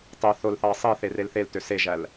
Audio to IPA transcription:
tˤ e θ o l θ ɑː sˤ i θ e r e l θ e l t ø s e ʒ æ l

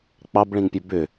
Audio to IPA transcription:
k͡p ɑ b ɭ ĩ ŋ pʲ ø b ʏ

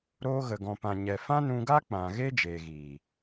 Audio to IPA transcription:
ɾ oː˧ ɣ ə˨ ɡ ɔ̃˨ p ã˨ ɲ ɛ˨ f ã˦ n ũ˧ ɡ a˦ k͡p ã˨ ɣ e˦ d͡ʒ eː˨ ɣ iː˨

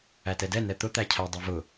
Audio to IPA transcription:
æ t ɛ d ɛ n ɛ t̪ ʊ t̪ æ cʰ æ dˤ ɜ v ʊ

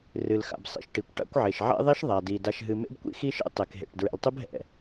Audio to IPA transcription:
r ɨ˨ l x a̰˨ b sˤ ḭ˨ ʃ ʈ i˨ kʷ ʈ a̰˦ kʷ ʕ e˨ ʃ ʕ ɛ̰˦ ðˤ i˦ ʃ ðˤ a˨ d i˨ d a˨ ʃ ɦ ɨ˨ m ḛ˦ b kʷ ḭ˦ x i˦ ʃ ḛ˦ tˤ e˨ k ɦ ḛ˨ ʈ d ɹ ɛ̰˨ l tˤ ɨ˦ b ɦ ɛ̰˨

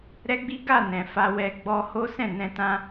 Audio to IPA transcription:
ɾ ɛ˦ ɡ͡b i˦ ɡ a˦˨ n ɛ̃˨ f a˧ w ɛ˧ ɡ͡b ɔ˧ h o˦ s ɛ̃˦˨ n ɛ̃˧ t ã˧

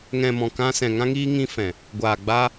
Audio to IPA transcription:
ŋ ɛ̃˨ m ɔ̃˨ k ã˧ s ɛ̃˨ ŋ ã˧ ŋ iː˧ ŋ ĩ˧ f ɛ̃˨ | ɡʷ aː˨ ɡ͡b aː˧

